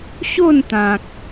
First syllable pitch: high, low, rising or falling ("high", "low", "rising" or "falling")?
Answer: falling